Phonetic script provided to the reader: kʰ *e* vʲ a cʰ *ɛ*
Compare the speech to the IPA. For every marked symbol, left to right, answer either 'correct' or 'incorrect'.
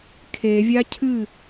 correct, incorrect: ɨ

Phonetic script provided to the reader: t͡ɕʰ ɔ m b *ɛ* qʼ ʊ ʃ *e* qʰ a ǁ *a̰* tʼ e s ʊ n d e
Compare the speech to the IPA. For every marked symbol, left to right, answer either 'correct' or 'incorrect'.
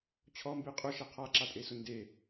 incorrect: e, incorrect: ɛ, incorrect: a

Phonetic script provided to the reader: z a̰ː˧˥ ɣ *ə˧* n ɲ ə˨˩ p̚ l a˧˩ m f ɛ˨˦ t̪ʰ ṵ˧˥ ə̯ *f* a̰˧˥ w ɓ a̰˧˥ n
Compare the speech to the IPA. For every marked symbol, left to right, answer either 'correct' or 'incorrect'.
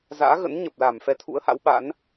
incorrect: ə̰˧˥, incorrect: h

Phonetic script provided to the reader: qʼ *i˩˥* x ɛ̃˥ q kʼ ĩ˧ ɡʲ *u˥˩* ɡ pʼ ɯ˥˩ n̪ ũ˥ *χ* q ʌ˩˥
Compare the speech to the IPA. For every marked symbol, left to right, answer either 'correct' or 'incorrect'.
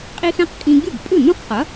incorrect: i˥, correct, correct

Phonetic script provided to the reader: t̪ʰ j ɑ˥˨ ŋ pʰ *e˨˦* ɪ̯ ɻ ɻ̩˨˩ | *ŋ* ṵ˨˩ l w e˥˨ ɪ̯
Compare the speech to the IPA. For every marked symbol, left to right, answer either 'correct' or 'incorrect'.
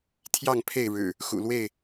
incorrect: e˥˨, incorrect: x

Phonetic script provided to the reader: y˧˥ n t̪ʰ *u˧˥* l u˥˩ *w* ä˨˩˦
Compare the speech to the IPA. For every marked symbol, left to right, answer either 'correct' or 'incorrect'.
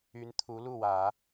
correct, correct

